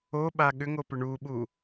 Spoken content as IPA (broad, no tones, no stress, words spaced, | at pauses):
oɓa ɠʏŋopʏ ɳuɓu